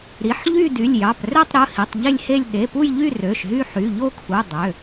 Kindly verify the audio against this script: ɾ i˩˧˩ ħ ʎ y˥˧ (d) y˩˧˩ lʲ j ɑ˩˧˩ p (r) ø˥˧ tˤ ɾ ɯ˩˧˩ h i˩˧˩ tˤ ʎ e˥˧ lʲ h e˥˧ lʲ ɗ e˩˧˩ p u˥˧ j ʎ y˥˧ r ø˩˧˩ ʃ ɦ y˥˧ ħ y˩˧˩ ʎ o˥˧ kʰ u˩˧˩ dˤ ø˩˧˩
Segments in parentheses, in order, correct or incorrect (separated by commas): correct, correct